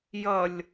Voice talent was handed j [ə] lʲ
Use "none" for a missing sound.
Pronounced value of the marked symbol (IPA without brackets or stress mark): ʌ